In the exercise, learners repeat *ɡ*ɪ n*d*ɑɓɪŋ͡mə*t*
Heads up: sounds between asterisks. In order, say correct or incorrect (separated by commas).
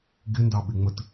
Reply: correct, correct, correct